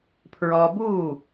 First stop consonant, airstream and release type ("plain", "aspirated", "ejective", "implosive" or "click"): aspirated